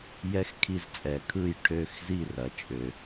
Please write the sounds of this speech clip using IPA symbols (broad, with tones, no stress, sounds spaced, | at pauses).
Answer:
j ɛ˦˥ x kʰ i˦˨ z t͡sʼ ɛ˨˩ kʰ ɯ˦˨ j ʈʰ ø˦˨ x z i˦˨ r ɐ˩˥ t͡ʃʼ ø˨˩